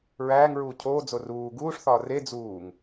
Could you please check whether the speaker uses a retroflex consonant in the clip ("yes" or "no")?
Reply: yes